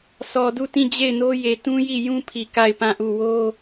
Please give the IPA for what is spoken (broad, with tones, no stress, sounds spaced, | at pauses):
s ɔ˨ d u˦˨ t ĩ˦˨ d͡ʑ e˦˨ ɪ̯ n o˦ j e˨ t ũ˦ j i˦˨ j ũ˦ pʰ i˨ k a˦˨ ɪ̯ p ã˦˨ ʔ u˦˨ w o˦